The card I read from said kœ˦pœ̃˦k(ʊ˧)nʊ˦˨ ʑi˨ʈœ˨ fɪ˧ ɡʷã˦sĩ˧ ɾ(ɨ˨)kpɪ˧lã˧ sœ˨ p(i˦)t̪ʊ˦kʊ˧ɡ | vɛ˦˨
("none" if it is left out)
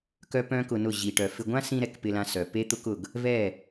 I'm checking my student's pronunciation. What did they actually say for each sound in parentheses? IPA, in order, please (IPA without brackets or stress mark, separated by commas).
ʊ˧, ɛ˨, e˦